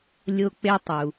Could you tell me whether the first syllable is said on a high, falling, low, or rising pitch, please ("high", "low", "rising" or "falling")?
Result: high